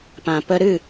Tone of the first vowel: low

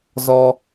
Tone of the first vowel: high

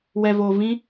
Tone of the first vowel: low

